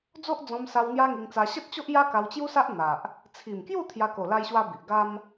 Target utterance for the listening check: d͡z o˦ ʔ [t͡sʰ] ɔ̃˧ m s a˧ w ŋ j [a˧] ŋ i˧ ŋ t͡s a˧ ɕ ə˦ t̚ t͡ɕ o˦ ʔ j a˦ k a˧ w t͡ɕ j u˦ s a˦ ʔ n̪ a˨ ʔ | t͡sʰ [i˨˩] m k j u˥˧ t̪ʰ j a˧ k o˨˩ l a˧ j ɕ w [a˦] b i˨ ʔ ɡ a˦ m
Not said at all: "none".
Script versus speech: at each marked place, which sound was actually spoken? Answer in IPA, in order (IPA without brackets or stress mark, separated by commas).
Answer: d͡z, a˦, i˨˩, a˧